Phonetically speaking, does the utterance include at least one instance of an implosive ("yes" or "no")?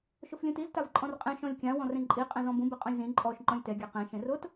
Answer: no